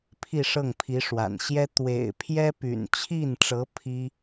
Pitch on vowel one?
falling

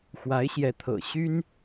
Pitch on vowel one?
rising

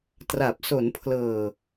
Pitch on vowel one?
low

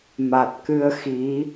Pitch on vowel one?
low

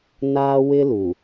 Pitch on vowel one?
high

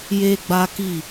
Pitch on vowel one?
high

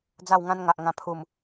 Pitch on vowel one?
falling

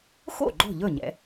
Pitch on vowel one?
falling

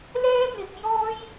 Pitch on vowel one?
high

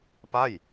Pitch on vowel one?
falling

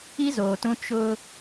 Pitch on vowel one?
high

